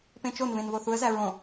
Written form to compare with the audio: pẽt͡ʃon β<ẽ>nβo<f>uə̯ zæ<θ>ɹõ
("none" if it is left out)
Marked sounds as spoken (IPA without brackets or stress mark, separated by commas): ẽ, θ, none